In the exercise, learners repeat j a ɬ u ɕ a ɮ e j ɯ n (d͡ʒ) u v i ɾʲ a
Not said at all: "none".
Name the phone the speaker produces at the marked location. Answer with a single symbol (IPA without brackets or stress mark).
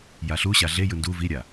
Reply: d